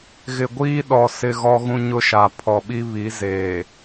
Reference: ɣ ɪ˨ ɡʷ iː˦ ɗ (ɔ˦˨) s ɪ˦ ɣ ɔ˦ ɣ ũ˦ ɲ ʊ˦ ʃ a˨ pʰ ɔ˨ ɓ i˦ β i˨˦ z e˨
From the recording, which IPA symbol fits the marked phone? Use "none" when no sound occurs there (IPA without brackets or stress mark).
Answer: ɔ˨